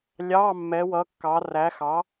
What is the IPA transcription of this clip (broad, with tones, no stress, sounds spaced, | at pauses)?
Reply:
lʲ ɑ˧˥˧ mː ɛ˧˥ w ʌ˧˥ kː ɑ˧˥ r æ˧˥ x ɑ˧˥